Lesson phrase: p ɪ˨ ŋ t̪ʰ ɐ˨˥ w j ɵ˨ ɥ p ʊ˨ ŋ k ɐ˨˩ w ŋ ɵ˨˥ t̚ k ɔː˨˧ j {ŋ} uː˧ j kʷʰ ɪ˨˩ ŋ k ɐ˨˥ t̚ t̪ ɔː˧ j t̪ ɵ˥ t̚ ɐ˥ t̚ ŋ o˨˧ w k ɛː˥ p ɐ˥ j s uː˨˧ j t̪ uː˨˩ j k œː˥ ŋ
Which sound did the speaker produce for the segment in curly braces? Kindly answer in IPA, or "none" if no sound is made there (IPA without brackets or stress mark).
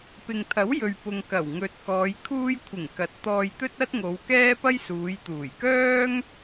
kʰ